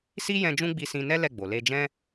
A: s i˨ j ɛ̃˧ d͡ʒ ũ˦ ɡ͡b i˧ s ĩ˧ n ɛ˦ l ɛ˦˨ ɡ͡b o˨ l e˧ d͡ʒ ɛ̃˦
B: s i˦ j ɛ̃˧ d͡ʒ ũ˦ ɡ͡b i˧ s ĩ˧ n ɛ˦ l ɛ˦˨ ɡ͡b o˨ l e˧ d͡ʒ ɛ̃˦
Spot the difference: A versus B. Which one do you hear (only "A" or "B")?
B